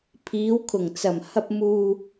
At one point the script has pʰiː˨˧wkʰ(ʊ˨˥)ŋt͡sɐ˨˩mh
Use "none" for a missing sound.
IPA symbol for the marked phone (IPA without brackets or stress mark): ʊ˨˩